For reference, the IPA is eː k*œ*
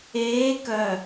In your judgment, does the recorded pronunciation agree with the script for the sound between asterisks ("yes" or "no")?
yes